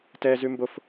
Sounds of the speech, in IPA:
t ɛ z ʉ m b o f

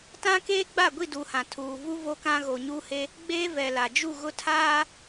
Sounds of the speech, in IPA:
t ã˦ k eː˦ ɡ͡b a˦˨ ɡʷ i˦˨ d u˨ h ã˨ tʰ uː˨ v u˦ v o˦ k ã˦ ɣ o˨ ɲ u˦ h e˦ | ɡ͡b eː˦ v ɛ˨ l a˨ d͡ʒ u˦˨ ɣ ʊ˦ tʰ aː˦

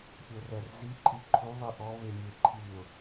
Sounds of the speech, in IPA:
pʲ o r ɛ r z i ǃʼ i ǃʰ u ðˤ i ʔ ɔ β e mʲ e ǃʰ i ʊ̯

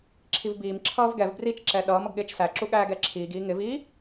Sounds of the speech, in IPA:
ǁʰ i v b iː m ǁʰ ʌː v ɡ ɛ v b r i t͡ʃ ǁ ɛ ɗ ʌː m ʌ ɡ ɠ ɪː t͡ʃ s æ ǁ u ɠ æː ɡ ɛ ǁʰ iː ɡ iː ŋ ɪ v iː

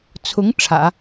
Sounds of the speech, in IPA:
t͡sʰ ʊ˧˥ ŋ ʈ͡ʂʰ ä̰˨˩˦

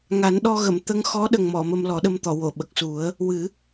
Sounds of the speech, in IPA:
ŋ a˨˩˦ n ɗ ɔ˧ ɣ ə˨˩˨ m t̪ ə˧ ŋ x ɔ˧˥ ɗ ə˨˩ ŋ m ɔ˨˩˨ m ə˧ m l ɔ˨˩˦ ɗ ə˧ m t̪ ɔ˨˩˨ w o˨˩˨ ɓ ə˨˩ k̚ s u˨˩˦ ə̯ | w ɨ˨˩˦

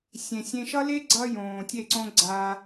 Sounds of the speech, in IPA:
sʲ ẽ˨ sʲ ẽ˧ ʃ ʌ˦ l e˦ ɡ͡ǀ ʌ˦ j õː˨ tʲ e˦˨ ǀ õ˦ ɡ͡ǀ a˦

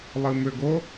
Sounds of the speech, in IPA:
lˠ ɨ m ʏ ɡ o

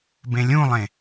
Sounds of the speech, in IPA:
b ẽ lʲ ũ lˠ ẽ

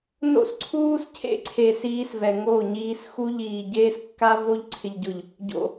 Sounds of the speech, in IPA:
n o̰˦ s ǀʰ uː˦ s cʰ ḛ˦ ǀʰ e˨ s iː˦ s v ɛ˨ ŋ o˦˨ ɲ iː˦ s x u˦ ʎ iː˨ ɟ eː˦ s kː a˦ v o˦ ʎ ǀʰ ɪ˨ ʎ ɟ ʊ˨ ʎ | ɟ o̰˨

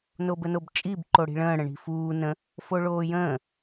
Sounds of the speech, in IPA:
n o b ə n o b t͡ʃʼ i b ǃ o ɽ i̤ ɭ ə̃ː ɽ ə̃ ɳ i̤ f uː n ə̃ | f o ɭ oː j ə̃ː

